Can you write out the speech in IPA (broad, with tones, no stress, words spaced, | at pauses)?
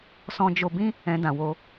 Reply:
sɔ̃˧d͡ʒo˧bĩ˦ | ɛ̃˧dã˨wo˧